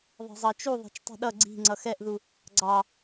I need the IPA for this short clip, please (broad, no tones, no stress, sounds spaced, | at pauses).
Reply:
ðˤ e̤ zˤ ɑ t͡ʃ u ðˤ ɛ̤ t͡ʃ tˤ i̤ ɗ ʌ ɡ͡ǀ i̤ ŋ͡ǀ ʌ x ɛ ʔ ð u | ɡ͡ǀ ɑ